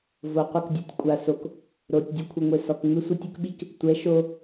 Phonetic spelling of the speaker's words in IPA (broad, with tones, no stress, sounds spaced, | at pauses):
v o˨ qʷ ɪ˦˨ k dʲ ɔ˧ tʲ kʷʼ a˨ s o˨ k | ɾ o˨ tʲ dʲ ʊ˧ kʷʰ ɪ˨ ŋʷ e˨ s ɔ˨ k ŋ͡m ɪ˦ sʷ ɛ˦ tʲ ʊ˦ k ɓ i˦ k | tʷ ɛ˨˦ ʃ o˧